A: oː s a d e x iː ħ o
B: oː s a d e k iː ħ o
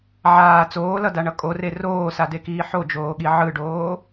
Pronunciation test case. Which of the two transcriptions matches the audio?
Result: B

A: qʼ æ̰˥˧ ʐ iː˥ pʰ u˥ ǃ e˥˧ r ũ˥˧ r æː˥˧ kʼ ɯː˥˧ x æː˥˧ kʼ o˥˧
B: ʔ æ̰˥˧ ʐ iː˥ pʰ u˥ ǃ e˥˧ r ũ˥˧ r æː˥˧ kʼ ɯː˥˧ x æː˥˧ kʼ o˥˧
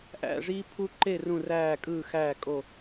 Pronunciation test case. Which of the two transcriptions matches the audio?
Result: B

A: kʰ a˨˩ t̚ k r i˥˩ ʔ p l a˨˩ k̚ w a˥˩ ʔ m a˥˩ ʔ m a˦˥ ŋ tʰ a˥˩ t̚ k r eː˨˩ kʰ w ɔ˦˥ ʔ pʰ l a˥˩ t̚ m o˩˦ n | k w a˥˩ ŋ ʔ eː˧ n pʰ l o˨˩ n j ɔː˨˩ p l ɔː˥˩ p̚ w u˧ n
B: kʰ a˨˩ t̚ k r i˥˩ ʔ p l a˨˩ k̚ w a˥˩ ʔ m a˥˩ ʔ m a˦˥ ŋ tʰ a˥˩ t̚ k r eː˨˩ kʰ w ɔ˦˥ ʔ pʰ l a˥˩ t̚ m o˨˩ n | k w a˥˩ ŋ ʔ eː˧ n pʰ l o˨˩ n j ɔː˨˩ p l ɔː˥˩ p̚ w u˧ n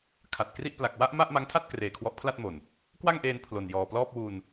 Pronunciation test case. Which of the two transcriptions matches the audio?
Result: B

